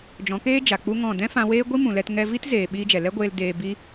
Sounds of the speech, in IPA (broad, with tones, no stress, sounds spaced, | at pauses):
d͡ʒ ɔ̃˨˦ k eː˦ d͡ʒ a˨ k͡p u˦ ŋ ɔ̃˦˨ d ɛ̃˦ f ã˧ w eː˦ ɡʷ i˦ m ũ˨ l ɛ˧ t ŋ ɛ˧ v i˦ t z eː˨ ɓ iː˧ d͡ʒ ɛ˨ l ɛ˦ ɡʷ eː˧ l d eː˧ b i˦